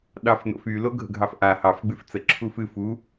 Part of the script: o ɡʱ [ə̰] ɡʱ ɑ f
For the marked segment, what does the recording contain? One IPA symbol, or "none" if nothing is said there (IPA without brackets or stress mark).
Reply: ə̰